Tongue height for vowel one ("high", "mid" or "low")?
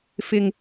high